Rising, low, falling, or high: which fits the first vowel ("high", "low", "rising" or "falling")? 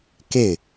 falling